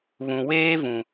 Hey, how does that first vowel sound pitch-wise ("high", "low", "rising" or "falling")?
low